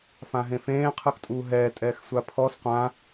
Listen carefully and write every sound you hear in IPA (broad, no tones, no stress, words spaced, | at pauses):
fãɦẽfẽː qʰɯxtʼuːɦɛː tʼɛːxsʷapʰɔs qʷã